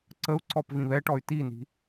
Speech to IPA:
ǀəu̯ǀɔp vĩβɛʈɔy̯ tini̤

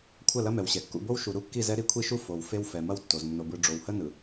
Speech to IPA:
kʷʰɐ˦˨lɐ˦mɛ˨wɕɛ˨ kːṵ˨bo˦w ʃu˨ɾu˦kːi˦˨zɛ˦ ɾi˦kʷʰi˦ʃu˦ fo˨w fe˦wfɛ˨ mɐ˦wtːo˨z nːo˨bɯ˨ ɖ͡ʐo˨whə˦nɯ˨

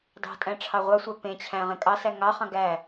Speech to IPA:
dɑ̤tʼæ̃ ʈ͡ʂʰɑʁʷɑsʷɑ pẽt͡ɕʰæ̃ ʁẽkʼɑsæ ŋɑχɑ̃ ɡæ

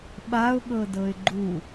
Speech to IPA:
ɓaʊ̯ɠɤdɤɪ̯ ɡ͡ǃu

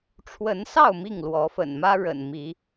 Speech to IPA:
ʈ͡ʂʰwə˨˦nsɑ˥˨ʊ̯ mi˥˨ŋlwɔ˨˦ fə̰˨˩nmä˦ ɻə̰˨˩n mi˨˦

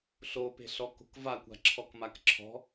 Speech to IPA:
ɬope̤ɬɔko̤k vakʷa̤ǁʰɔkmak ǁʰɔ̤

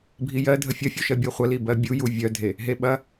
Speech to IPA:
bʱijɜ dʱəfʲɐfʲu ʃɜbʲɜχʷɐ libɜbʲu juvʲœdʱe | ɦeɓɐ

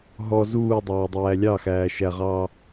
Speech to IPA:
ɦɔ zuːdˤɑːdˤæː lʲɑxæːʃæʁɑː

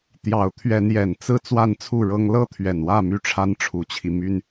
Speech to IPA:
t̪jɑ˨˦ʊ̯t̪ʰɥɛ˨˦njɛ˨˩n t͡sɹ̩˥˨ t͡swa˥˨nt͡sʰu˥˨ɻɤ˦ŋ lɤ˥˨t̪ʰɥɛ˨˩nwä˥˨ my˥˨ʈ͡ʂʰa˦n ʈ͡ʂʰu˨˦t͡ɕʰi˧ my˦n

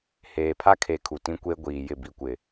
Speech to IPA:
heː˨pʰa˦kʰe˨ kʰu˨tĩ˦ kʷe˦ɡʷiː˨jɪ˦˨ bi˨kʷɪ˨

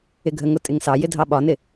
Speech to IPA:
ɪɡʱəŋʊ tʼɪŋsɑjɪ dʱɑɓɒnɪ

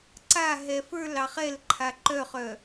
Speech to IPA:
ǀaɦɛ fə˞lɑ χɛlǃʰa ǃœχœ

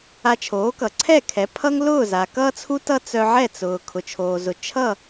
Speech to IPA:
a˧t͡ʃʰoː˩˥kʌ˩ ǀʰɛ˥˩kʰɛ˩˥ pʰʌ˥ŋlʊː˥˩za˩ kʌː˥t͡sʰu˥tʌ˥ t͡sœ˧ʕɛ˥˩ t͡sʊː˩ kʰʊ˩t͡ʃʰoː˩zʊ˩ t͡ʃʰʌ˥˩

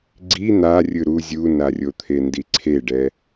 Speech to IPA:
ɡ͡ǀi n̪a rʲɯɾu zʲunarʲot̪ʰe ndiǀʰeɖɛ

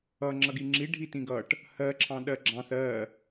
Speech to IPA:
ʌ ŋ͡ǁʌɡiŋ͡ǁi ɖʱitĩɡʌʈ | hɜ ǁʰɑ̃ɗɜɡ͡ǁɑ̃θ ɜ

